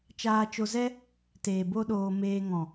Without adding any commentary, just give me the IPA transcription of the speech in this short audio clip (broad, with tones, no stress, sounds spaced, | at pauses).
t͡ʃ aː˧ t͡ʃ o˧ z ɛ˦ | t eː˨ b o˦ ɗ oː˧ m eː˧ ŋ ɔ̃˨